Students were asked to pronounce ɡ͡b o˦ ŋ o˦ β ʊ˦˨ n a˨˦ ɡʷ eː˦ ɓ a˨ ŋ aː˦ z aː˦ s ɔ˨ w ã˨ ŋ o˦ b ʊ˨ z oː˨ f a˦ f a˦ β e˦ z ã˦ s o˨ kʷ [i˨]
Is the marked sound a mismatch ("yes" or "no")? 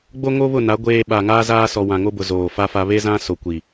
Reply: no